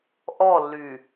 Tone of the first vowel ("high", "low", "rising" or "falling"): falling